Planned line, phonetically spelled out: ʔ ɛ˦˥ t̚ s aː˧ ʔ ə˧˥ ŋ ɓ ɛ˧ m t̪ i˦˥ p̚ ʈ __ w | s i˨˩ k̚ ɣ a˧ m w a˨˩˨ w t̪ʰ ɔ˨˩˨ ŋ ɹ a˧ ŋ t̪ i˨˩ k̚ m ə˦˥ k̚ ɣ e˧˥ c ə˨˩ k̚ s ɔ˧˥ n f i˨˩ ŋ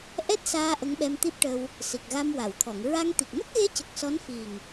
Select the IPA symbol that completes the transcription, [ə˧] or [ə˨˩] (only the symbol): ə˧